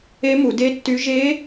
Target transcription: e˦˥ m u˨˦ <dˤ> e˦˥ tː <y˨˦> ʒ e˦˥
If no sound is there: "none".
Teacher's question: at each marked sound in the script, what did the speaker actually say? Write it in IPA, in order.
d, y˦˥

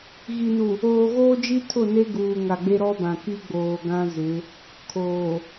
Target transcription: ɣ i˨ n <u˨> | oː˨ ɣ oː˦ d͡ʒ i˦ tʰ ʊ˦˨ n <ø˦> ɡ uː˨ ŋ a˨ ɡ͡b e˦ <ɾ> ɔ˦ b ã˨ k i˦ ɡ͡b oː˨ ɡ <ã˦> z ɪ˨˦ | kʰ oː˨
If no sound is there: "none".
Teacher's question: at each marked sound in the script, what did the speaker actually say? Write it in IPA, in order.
u˨, e˦, ɾ, ã˦

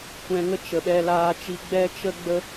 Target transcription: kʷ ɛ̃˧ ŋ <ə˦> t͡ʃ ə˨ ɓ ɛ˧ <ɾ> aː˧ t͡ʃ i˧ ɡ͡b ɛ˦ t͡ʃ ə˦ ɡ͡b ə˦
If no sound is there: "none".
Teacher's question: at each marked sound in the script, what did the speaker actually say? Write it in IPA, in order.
ə˦, l

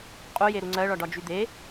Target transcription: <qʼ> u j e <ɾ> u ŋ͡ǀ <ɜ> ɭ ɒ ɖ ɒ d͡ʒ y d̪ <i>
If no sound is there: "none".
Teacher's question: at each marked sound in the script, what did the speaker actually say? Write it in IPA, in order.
qʼ, ɾ, ɜ, e

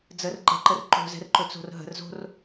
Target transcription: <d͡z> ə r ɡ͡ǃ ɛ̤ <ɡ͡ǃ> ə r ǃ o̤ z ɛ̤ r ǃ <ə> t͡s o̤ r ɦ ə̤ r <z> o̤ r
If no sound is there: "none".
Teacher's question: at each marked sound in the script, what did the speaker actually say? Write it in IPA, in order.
d͡z, ǃ, ɵ, z

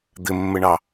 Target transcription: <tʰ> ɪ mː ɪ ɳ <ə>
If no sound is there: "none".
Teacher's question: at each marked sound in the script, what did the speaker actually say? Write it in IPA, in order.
d̪, ɑ

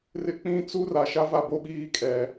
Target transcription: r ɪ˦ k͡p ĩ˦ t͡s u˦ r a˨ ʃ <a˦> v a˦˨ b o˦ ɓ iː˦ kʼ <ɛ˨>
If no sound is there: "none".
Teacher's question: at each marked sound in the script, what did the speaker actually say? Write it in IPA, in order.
a˦, ɛ˨

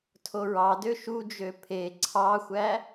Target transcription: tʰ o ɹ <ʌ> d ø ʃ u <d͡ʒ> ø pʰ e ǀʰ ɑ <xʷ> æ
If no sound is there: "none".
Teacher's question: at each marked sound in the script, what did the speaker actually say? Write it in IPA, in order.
ɑ, d͡ʒ, xʷ

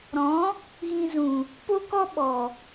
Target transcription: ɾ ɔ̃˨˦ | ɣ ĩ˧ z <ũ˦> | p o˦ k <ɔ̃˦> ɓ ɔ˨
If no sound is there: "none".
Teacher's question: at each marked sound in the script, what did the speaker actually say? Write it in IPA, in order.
ũ˨, ɔ˦

